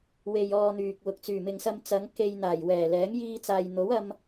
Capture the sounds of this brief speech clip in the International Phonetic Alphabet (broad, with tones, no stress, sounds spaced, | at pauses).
w e˧ j ɔː˧ n̪ yː˨ k̚ w ʊ˨˥ k̚ t͡s yː˨˩ m ɪ˨ ŋ s ɐ˧ m t͡s ɐ˨˧ ŋ k e˧ j n̪ aː˨˩ j w ɛː˨˩ l ɛː˨˥ ŋ j iː˧ t͡s aː˨ j n̪ o˨˥ w ɐ˧ m